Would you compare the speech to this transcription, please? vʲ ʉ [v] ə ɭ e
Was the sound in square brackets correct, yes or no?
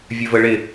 yes